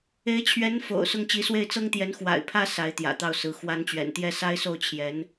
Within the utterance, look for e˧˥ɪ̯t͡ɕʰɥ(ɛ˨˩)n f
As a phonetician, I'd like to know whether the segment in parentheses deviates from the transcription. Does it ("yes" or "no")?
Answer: yes